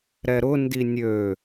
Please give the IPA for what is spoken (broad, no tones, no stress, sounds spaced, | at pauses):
ɾ ɛ ɾ ʊ n d i nʲ ø